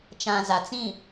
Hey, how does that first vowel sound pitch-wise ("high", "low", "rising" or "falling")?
low